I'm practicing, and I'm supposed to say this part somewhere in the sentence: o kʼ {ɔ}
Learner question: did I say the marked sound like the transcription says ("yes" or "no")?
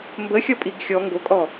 yes